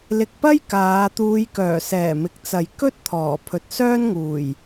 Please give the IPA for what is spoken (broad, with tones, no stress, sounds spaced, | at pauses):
l ɪ˨ k̚ p ɐ˥ j k aː˨˧ t̪ uː˨˧ j k œː˨˩ s ɛː˨˩ m ɪ˨ k̚ t͡s ɐ˨ j k ɵ˥ t̚ t̪ʰ ɔː˨˩ pʰ ɵ˨ t̚ s œː˥ n ŋ uː˨˩ j